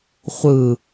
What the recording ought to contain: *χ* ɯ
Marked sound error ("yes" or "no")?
yes